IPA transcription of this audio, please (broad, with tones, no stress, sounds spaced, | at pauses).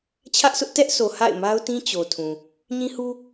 t͡ɕʰ ä˦ ʔ sʰ ʊ˦ ʔ t ɛ˦ ʔ sʰ o˨ h a̰˦˨ ɪ̯ m a˦ ʊ̯ t ĩ˦ t͡ɕ o˨ tʰ ũ˨ | ɲ ĩ˦ h u˦